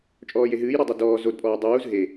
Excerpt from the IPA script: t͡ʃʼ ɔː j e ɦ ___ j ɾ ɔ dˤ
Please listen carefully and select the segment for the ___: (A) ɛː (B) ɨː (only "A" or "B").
B